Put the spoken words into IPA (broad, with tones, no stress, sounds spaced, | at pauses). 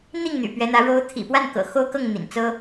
n̪ i˥˩ ŋ n̪ y̰˨˩ p ɥ ɛ˧˥ n̪ ä˧˥ ɻ o˧˥ ʊ̯ t̪ʰ ḭ˨˩ p w a˥˩ n k ɤ̰˨˩ x o˥ ʊ̯ k ɤ˥˩ ŋ n̪ ḭ˨˩ n t͡s ɤ˥